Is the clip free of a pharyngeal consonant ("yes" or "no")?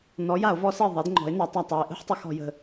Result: no